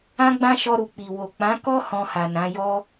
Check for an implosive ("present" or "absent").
absent